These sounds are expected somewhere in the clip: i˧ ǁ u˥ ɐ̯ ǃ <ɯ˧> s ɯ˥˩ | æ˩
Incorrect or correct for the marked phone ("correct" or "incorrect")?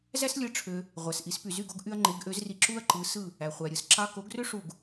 incorrect